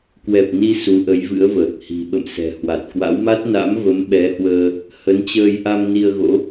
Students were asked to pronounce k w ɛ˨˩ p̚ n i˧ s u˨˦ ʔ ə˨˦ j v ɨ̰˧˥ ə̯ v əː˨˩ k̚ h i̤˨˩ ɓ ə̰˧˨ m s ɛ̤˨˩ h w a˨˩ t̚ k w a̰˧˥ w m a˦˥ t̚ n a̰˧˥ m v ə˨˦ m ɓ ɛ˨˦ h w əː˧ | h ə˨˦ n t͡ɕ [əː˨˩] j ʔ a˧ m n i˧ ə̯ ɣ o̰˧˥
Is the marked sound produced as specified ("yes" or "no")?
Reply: no